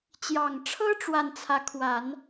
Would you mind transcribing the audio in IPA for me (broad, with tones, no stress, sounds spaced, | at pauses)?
t͡ɕ j ɑ˨˩ ŋ ʈ͡ʂʰ ɤ˥ ʈ͡ʂ w a˥˩ n t͡sʰ ä˧˥ kʰ w a˨˩˦ n